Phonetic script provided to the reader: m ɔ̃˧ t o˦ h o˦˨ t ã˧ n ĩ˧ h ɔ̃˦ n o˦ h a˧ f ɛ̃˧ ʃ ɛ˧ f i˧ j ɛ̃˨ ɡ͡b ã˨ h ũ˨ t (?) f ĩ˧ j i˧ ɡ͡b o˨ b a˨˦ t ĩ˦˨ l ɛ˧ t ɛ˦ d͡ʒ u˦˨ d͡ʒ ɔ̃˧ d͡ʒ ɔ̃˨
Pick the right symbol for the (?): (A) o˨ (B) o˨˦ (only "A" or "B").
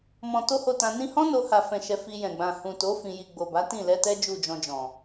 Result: B